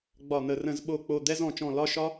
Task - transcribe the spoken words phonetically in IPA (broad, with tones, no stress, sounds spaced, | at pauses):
ɡ͡b ɒ˧˩ n̪ ə˧˩˧ r ə̃˧˩˧ z ɓ o˧˩ k͡p o˧˩ d̪ ɛ˥˧ z ɔ̃˧˩ t͡ʃ ɔ̃˧˩ l ɒ˥˧ ʃ ɒ˥